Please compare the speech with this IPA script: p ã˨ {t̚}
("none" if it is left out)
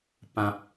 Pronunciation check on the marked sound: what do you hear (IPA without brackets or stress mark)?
p̚